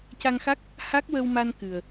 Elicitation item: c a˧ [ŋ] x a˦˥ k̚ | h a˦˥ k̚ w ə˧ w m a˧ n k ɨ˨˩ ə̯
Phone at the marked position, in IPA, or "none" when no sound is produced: ŋ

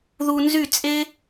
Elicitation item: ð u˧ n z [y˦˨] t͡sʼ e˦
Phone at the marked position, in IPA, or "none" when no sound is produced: y˦˨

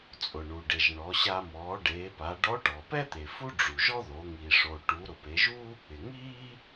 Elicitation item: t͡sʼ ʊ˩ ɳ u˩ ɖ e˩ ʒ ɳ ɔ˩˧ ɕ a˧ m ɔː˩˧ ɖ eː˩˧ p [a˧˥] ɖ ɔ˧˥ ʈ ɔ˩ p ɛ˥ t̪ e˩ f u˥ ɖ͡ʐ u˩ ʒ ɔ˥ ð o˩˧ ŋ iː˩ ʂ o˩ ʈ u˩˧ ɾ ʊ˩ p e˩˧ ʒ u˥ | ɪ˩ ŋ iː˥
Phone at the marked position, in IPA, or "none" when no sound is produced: a˩˧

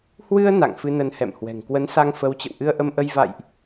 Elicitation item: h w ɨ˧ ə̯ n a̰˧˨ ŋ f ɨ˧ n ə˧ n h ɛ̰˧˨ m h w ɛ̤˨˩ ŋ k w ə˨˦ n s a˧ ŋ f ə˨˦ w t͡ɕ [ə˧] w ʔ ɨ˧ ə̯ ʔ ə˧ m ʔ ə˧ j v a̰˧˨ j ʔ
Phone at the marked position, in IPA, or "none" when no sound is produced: ə̰˧˨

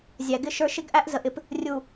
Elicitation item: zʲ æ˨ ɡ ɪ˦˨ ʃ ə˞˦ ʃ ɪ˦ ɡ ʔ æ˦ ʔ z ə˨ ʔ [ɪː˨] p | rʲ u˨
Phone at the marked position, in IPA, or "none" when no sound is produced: ɪ˨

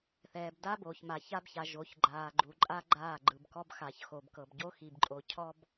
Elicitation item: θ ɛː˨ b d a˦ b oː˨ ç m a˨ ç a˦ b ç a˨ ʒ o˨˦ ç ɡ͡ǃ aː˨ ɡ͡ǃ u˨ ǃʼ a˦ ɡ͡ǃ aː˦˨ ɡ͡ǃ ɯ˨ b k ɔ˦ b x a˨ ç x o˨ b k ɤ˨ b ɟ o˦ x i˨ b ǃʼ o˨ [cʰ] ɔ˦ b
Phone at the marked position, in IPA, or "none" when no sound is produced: cʰ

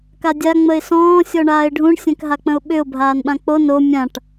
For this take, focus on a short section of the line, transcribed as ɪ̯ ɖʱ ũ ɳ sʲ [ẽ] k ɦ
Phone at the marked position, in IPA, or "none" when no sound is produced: ɛ̃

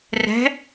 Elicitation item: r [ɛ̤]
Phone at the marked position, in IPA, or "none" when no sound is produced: ɛ̤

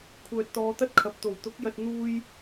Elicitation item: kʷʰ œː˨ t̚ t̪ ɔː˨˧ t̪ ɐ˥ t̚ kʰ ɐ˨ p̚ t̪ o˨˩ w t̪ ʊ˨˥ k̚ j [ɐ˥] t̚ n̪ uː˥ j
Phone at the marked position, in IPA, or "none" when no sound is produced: ɐ˧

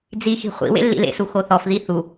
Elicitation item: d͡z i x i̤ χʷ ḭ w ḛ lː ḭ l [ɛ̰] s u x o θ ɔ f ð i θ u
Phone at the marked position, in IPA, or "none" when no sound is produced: ḛ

